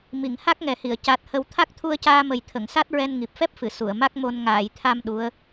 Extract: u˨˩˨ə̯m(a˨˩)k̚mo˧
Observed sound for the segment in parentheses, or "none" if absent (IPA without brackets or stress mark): a˦˥